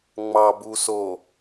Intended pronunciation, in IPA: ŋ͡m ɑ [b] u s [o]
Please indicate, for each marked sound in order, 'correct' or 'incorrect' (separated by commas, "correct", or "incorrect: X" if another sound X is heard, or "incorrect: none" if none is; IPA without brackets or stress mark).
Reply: correct, correct